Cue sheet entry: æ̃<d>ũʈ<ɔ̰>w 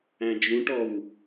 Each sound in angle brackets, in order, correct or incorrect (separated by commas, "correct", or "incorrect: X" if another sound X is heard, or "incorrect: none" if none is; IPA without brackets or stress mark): incorrect: d͡ʒ, incorrect: ɔ